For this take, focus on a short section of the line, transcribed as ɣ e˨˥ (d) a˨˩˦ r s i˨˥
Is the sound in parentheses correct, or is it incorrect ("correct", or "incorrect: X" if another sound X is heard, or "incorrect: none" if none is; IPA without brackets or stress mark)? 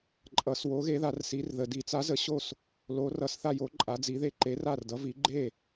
incorrect: ð